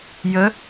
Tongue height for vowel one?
mid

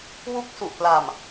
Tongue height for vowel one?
high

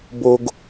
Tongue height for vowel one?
mid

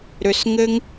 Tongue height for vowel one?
high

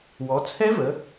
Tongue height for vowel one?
mid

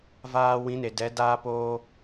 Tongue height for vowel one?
low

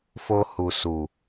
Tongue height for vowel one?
mid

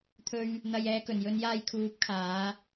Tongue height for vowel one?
mid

